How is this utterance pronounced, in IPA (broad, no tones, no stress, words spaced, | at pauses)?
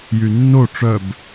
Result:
jynːo ʈ͡ʂœb